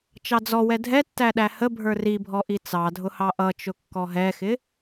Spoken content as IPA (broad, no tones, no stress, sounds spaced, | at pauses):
t͡ʃ ɑ d͡z ɔ w ɛ dʱ ɛ tː æ ɗ æ h ə bʱ ə˞ r i bʱ ɔ ʔ i t͡s ɑ dʱ ʊ h ɑ ʔ ʌ t͡ʃ ʊ kː ɔ ɦ ɛ x ɪ